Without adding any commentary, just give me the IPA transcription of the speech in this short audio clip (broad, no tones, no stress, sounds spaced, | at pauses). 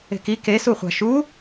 e̤ k i k e s u χʷ a̤ ʃ u